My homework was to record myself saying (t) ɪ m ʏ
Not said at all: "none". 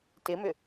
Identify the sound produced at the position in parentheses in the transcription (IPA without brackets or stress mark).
t